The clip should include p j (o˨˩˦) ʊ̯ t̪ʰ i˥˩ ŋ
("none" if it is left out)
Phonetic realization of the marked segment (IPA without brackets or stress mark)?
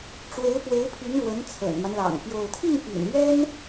o˥˧